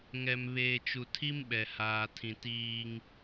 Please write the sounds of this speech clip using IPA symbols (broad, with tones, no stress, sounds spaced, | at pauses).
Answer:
ŋ ɛ˨ m β eː˨ t͡ʃ u˨ tʰ i˦ m ɓ ɛ˨ h aː˨ tʰ ĩ˨ t iː˦ ŋ